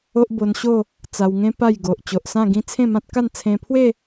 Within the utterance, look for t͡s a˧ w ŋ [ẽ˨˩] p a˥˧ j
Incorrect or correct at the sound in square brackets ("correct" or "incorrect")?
incorrect